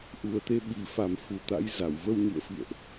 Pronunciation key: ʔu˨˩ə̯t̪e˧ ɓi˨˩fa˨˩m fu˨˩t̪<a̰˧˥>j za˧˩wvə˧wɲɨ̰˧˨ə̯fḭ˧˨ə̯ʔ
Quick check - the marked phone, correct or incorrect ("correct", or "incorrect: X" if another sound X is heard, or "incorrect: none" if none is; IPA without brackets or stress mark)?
correct